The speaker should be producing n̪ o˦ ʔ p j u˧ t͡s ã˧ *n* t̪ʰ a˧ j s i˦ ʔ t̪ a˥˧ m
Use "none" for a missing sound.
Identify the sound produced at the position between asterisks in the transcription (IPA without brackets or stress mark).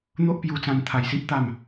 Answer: n